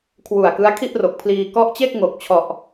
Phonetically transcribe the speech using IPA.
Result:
kʰwu˨˩a̯kɯ˦˥a̯ kʰi˥˩ʔro˨˩k̚pʰliː˧ kɔ˦˥ʔt͡ɕe˥˩k̚ŋo˨˩k̚t͡ɕʰɔ˨˩ʔ

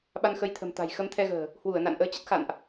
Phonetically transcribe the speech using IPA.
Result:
ɓa˧nxə˨˦jt̪ʰə̤˨˩m t̪a̤˨˩j xə˧mt̪ʰɛ˧ɣə̤ː˨˩ | hwu˧˩ə̯ na̰˧˨nʔəː˨˦t͡ɕə˦˥t̚ xa̰˧˨nʔ

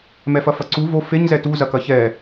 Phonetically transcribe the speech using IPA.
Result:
mɛfɐfɐǀu vo feɲzɛ tu zɐkɐçɛ

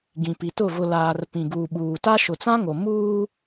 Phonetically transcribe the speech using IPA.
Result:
ɡĩ˨pi˨tʊ˦˨ vʊ˨laː˨r pĩ˨ɡuː˨ɓuː˨ta˦ ʃʊ˨t͡sã˦ŋo˨ muː˦

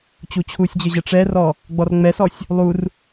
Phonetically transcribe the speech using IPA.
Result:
t͡ɕut͡ɕʰusʲd͡ʑɘ ʑɜʈ͡ʂɛrɔ | ɡ͡bɔrŋ͡mɛsɔsʲ | lˠur

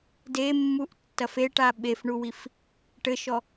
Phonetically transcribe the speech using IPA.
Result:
demːuʔtːɐf eʈa ɓefɳuwif | ʈɘʃɔ

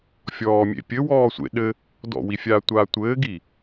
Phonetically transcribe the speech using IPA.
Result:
fʲɔːmʲḛ pʲɘwɔː sʷḛ ɗɘ | dɔ̰wifʲaːtʷaː tʷɘːɡi

